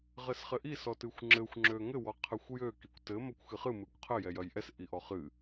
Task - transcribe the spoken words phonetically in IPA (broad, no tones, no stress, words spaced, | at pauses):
ʁɘsχɘʔis ɔtɨxʷŋ͡ǁɘxʷ ŋ͡ǁøŋɘ wɔqʰɘxʷjø kikʷtɘ mɐkʷxɨχɨ mɨkʷqʰɘ jɛjɐjʔɛs ʔiʔɔχɨ